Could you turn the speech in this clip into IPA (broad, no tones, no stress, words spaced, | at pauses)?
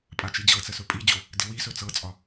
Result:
pʼat͡ʃid͡ʑɤt͡sə sɵpʼid͡ʑo | dɪwisɵ t͡sɤt͡sʼɒ